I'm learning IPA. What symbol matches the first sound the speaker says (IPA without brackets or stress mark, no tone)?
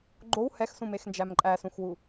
ɡ͡ǃ